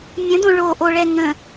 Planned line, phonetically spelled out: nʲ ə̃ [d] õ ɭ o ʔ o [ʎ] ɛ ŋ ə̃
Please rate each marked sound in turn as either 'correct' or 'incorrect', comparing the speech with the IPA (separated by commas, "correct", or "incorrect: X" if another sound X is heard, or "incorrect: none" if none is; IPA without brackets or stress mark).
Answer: correct, incorrect: ɭ